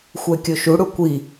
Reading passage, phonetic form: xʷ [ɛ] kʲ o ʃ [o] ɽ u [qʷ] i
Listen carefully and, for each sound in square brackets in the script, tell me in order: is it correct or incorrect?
correct, incorrect: u, incorrect: kʷ

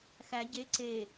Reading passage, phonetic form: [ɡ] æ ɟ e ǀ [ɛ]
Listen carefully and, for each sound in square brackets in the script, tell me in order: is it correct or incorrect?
incorrect: x, incorrect: e

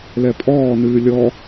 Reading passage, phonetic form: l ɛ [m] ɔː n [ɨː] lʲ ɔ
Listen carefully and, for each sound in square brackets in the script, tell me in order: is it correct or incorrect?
incorrect: pʼ, correct

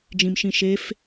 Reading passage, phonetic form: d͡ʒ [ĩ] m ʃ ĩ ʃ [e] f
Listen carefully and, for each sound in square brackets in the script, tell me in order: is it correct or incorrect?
correct, correct

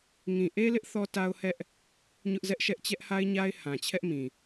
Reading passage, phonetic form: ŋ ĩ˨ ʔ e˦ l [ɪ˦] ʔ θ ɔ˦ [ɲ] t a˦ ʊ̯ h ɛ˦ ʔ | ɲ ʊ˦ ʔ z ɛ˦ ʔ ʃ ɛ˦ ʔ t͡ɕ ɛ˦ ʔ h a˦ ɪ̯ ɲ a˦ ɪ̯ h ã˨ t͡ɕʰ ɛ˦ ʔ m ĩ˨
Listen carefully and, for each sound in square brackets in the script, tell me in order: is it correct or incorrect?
correct, incorrect: none

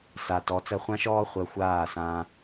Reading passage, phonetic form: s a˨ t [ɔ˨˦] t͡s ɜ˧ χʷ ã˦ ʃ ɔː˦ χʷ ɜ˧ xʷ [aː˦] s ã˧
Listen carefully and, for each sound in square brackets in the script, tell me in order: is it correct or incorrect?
correct, incorrect: aː˦˨

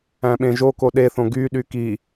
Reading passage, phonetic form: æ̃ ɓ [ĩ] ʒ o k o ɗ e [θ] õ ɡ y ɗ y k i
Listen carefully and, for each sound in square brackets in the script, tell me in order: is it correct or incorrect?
incorrect: ẽ, correct

